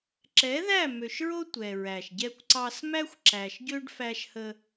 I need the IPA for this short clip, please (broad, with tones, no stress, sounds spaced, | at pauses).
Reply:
ǁ ɛ˨˦ ð æ˦˨ m ø˨ ʃ ɹ o˦ tʷ ɛ˨ ɹ æ˨ ʃ ɟ ɛ˦ kʷ ǀ ɑ˦ s m æ˦ xʷ ǁ æ˨ ʃ ɟ ø˦ ɖ f æ˦ ʃ h ə˦